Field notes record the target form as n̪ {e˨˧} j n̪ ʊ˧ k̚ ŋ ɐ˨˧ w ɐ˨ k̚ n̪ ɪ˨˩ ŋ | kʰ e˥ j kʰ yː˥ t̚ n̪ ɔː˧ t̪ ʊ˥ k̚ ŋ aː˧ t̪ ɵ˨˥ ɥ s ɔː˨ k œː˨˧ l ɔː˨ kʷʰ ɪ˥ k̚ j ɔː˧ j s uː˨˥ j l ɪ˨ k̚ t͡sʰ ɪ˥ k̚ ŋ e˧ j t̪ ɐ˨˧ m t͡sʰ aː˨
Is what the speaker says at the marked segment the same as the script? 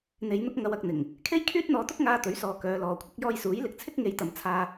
yes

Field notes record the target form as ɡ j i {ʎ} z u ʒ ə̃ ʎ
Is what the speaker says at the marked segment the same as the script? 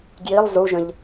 no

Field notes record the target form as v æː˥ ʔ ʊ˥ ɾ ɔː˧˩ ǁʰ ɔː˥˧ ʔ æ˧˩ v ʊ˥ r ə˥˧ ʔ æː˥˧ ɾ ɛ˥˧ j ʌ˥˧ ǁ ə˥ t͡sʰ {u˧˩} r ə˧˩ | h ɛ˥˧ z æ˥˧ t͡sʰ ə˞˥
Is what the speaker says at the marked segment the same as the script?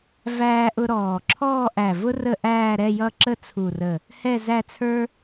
yes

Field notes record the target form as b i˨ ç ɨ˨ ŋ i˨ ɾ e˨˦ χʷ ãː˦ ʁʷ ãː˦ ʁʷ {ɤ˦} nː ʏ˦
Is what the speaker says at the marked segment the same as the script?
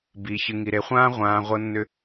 yes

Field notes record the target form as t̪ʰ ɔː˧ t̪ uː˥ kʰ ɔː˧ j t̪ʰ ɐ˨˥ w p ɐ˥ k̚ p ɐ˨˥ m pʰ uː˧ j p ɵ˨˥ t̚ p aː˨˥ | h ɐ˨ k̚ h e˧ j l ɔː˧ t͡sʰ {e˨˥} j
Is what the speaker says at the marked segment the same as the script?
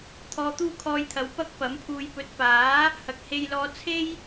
no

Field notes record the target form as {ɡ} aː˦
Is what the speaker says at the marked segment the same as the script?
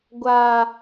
no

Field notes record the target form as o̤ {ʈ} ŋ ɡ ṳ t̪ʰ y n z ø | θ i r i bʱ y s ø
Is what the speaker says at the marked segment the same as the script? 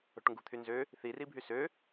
yes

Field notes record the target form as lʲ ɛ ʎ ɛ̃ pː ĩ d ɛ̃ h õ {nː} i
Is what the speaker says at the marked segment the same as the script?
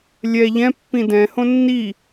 yes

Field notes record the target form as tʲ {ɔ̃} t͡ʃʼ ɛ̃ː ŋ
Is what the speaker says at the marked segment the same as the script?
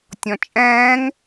yes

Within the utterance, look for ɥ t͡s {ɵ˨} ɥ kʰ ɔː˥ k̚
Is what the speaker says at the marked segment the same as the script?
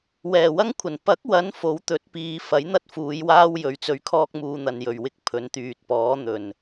no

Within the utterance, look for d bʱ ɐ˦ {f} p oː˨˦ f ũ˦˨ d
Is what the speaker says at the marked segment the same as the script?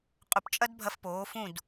yes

